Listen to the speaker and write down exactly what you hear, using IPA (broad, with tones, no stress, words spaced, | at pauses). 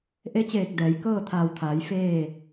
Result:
ʔe˧˥t͡ɕeː˧˩k̚ dɛː˩˧j kɤː˥˨t̪ʰaː˧˩wt̪ʰaː˩˧j feː˥˨